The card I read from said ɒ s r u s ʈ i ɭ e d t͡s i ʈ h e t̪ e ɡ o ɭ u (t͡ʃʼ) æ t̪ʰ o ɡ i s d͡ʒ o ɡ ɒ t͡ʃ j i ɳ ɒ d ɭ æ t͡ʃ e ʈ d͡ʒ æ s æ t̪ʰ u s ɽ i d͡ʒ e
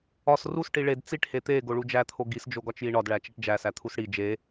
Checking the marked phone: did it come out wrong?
yes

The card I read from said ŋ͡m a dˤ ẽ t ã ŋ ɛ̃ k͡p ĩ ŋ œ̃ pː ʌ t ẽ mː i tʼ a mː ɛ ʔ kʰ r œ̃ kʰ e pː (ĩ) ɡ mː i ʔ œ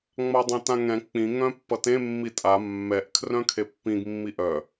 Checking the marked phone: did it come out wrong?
no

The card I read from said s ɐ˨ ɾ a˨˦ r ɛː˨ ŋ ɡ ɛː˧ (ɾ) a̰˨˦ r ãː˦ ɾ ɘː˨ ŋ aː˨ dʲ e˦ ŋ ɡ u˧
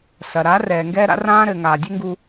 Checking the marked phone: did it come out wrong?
no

